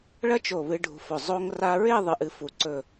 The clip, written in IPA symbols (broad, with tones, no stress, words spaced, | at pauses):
ɭɐ˥t͡ʃo˧˩βɨ˧ ɖʱṳ˧fɵ˧˩ zˤo˧ŋra˧ɹe˥˧ ðˤɨ˥ʔɨ˥fu˥˧ ǀɵ˥˧